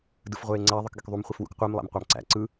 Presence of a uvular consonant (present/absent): present